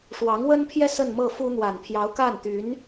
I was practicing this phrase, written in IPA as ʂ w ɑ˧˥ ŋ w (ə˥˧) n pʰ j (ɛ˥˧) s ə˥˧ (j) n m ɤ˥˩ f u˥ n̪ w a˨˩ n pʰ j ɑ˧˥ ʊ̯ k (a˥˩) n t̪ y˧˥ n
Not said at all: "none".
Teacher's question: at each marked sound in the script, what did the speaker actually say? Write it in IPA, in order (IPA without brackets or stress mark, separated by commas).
ə˥, ɛ˥˧, none, a˥˩